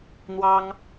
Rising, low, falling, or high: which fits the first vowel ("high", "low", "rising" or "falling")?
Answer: high